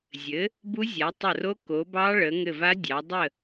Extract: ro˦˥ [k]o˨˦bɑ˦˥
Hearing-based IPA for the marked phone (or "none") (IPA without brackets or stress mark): k